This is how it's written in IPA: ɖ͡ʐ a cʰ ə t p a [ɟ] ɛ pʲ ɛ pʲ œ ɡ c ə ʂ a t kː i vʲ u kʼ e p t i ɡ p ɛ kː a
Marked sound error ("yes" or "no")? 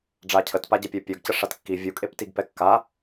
no